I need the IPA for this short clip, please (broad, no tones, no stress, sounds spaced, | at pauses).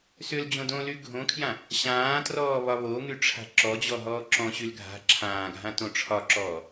s ʏ l d͡ʑ õ d õ l y ɡʱ õ kʰ j ã | ɕ ãː t r ɔː β ɒ β o ŋ y ʈ͡ʂʰ a̤ ǁ ɔ d͡ʑ ɔ ɦ ɔː ǁ ɔ̃ ɕ y l ɡʱ a̤ ǁʰ ãː ɡʱ ã t õ ʈ͡ʂʰ ɒ ǁ ɔː